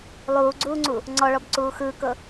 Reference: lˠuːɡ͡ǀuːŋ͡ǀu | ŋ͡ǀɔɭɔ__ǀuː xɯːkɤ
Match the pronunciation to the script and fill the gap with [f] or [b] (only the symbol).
b